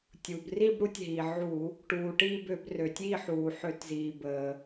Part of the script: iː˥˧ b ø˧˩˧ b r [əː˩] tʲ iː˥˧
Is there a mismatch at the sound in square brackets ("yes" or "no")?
yes